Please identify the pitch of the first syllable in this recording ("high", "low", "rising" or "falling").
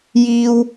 high